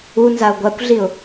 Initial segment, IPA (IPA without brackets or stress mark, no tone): u